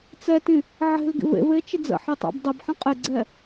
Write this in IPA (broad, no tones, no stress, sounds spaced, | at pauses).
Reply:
t͡s ɛ t ĩ | ʕ e̤ l ɡ ḭ v ḛ v e t͡ʃ ɪ d͡z ə̰ ħ i tˤ a̰ b dˤ ɛ b ħ ə̃ qʼ ɪ ɡ͡ǀ ɛ